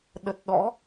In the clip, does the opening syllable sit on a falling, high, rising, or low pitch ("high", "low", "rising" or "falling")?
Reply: low